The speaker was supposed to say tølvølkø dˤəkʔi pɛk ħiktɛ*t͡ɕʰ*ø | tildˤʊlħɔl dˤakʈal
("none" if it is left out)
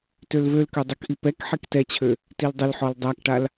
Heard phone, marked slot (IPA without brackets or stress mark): t͡ɕʰ